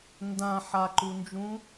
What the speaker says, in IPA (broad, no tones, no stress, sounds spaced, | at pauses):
n d ã ħ a ǃ u n d͡ʒ ũ